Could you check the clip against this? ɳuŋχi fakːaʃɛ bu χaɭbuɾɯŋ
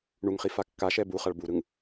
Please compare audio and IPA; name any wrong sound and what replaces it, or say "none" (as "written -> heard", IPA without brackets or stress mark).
none